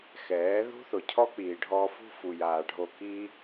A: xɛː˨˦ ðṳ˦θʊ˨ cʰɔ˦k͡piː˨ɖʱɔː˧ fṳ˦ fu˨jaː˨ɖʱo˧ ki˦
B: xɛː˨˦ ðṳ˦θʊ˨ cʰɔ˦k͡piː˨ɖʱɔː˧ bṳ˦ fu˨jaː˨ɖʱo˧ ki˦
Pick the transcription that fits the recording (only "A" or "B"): A